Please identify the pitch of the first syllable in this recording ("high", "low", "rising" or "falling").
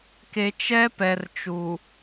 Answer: low